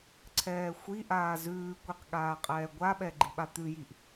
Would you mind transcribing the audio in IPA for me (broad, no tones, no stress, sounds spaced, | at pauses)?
ǀʰ ɛː xʷ i ʔ aː z ʉː kʷ i q ɠ aː qʼ ɛː ɡʷ a ɓ ɛ ɡ͡ǃ i ɓ a t̪ ʉ j i ʔ